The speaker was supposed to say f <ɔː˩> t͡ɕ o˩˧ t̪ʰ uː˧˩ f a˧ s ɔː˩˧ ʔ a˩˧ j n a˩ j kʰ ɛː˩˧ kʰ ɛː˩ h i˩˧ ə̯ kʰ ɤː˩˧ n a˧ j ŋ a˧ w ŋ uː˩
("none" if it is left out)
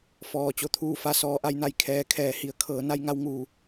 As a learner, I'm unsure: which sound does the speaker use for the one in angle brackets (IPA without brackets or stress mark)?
ɔː˩